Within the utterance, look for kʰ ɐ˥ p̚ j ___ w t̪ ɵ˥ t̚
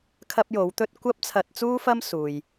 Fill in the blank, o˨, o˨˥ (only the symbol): o˨˥